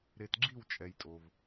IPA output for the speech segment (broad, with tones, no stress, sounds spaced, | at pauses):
ɾ e˧ t ɡ͡ǁ i˥˧ w t͡ʃʼ ɛ˧ j tʼ o˧ v